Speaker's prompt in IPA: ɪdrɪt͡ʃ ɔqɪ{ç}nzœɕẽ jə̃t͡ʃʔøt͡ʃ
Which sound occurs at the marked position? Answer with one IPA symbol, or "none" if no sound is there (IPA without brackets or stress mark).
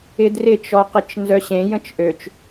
t͡ʃ